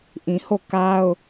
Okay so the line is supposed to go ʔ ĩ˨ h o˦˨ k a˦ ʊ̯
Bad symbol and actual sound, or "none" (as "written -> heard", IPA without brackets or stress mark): none